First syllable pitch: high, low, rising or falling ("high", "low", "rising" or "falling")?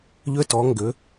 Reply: high